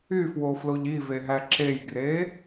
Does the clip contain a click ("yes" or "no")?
yes